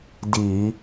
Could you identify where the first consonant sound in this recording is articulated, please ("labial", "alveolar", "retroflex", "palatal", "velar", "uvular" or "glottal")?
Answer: alveolar